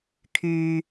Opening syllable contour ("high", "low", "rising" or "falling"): low